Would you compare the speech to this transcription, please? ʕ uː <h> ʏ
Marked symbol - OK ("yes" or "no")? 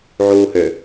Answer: yes